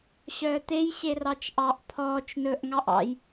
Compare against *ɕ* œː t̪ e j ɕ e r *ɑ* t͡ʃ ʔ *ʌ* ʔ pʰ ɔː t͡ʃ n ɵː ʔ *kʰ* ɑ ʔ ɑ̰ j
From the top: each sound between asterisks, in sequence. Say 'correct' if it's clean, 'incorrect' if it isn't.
correct, correct, incorrect: ɑ, incorrect: ŋ

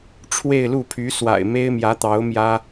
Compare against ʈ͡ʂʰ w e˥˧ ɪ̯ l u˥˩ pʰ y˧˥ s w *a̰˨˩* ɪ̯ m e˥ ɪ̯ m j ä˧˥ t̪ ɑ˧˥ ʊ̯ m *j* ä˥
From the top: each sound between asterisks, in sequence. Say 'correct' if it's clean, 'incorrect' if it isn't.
correct, correct

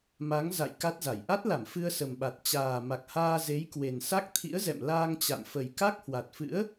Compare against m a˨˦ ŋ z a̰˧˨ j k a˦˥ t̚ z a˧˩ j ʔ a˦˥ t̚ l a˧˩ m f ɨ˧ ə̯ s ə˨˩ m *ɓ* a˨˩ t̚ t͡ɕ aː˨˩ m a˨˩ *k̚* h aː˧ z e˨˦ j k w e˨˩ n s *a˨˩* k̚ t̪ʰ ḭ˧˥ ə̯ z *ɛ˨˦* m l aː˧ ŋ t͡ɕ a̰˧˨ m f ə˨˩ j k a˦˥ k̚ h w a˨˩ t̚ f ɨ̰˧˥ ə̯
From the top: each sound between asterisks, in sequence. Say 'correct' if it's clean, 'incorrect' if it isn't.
correct, correct, incorrect: a˦˥, incorrect: ɛ̰˧˨

